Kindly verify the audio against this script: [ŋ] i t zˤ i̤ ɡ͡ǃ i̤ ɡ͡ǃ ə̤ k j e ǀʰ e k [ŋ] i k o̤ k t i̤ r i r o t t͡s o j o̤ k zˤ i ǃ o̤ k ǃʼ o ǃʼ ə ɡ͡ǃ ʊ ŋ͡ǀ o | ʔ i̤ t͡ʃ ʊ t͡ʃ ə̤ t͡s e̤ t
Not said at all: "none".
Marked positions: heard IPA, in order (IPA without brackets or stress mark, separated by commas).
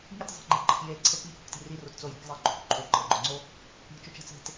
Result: ŋ, ŋ